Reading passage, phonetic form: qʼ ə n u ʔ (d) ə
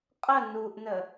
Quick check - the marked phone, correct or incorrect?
incorrect: n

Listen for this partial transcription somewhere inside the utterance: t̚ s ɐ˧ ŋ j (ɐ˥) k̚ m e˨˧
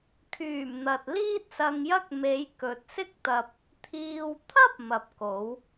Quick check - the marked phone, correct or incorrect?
correct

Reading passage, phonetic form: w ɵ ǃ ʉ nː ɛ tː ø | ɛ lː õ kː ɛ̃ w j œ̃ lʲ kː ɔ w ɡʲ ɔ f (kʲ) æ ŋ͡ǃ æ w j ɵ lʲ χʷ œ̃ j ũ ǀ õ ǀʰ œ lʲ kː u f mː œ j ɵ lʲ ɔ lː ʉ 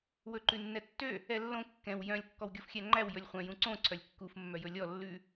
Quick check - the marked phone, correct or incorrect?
incorrect: xʲ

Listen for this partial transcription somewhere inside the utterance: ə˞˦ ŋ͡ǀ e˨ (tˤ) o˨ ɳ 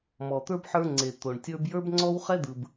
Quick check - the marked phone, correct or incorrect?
incorrect: t̪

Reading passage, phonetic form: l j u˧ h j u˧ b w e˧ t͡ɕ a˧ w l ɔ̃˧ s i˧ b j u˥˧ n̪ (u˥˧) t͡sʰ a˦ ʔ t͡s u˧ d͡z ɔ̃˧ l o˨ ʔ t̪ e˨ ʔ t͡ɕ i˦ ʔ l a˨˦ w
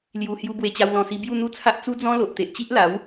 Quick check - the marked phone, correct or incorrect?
correct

